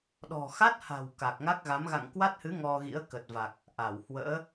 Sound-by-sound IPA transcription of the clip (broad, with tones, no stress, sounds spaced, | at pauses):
ɗ ɔ̤˨˩ x a˦˥ t̚ h a̤˨˩ w k a˨˩ k̚ ŋ a˦˥ k̚ ɣ a˨˦ m ɣ a̰˧˨ ŋ k w a˦˥ t̚ h ɨ˨˦ ŋ ɔ˧ ɣ ḭ˧˥ ə̯ k ə˨˩ t̚ v a˨˩ k̚ | ʔ a˧˩ w h w ə̰ː˧˥